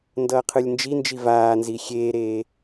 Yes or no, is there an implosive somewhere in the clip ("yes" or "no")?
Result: no